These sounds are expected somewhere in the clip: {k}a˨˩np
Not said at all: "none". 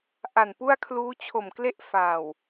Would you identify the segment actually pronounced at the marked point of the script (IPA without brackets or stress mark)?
ʔ